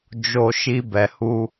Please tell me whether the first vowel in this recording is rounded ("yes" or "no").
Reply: yes